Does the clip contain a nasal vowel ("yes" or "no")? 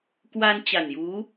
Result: no